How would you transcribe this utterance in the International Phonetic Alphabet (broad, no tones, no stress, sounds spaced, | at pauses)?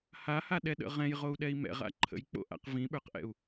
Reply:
h a h a ɗ ɛ ɗ ə̰ ʁ ɛ̃ j ʁ o u̯ ɗ ɛ i̯ m ɛ̰ ʁ a̰ ǃʰ ə̰ j k͡p o̰ ʔ a̰ q v ĩ ɓ ə˞ q ʔ ɛ̰ u̯